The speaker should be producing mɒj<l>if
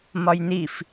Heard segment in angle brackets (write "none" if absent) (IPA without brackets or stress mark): n